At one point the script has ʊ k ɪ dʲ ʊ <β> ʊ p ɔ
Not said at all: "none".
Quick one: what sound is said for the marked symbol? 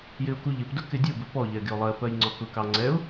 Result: b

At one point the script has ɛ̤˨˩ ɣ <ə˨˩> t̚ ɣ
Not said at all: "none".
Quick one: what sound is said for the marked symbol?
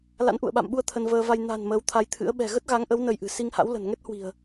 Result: ə˦˥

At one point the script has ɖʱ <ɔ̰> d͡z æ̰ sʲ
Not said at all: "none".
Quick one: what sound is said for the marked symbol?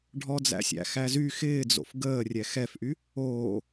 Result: ɔ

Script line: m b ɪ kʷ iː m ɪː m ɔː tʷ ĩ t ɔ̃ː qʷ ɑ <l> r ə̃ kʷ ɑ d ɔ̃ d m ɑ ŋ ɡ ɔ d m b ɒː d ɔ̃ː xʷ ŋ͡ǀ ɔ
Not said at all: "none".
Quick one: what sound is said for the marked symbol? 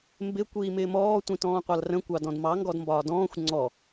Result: l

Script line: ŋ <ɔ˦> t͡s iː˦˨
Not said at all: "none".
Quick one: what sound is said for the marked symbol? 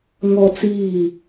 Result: ɔ˦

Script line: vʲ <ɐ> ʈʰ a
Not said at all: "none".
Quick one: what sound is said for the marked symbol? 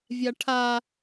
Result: a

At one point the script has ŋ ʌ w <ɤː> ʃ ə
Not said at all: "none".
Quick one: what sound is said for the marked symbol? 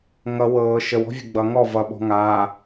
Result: ɤː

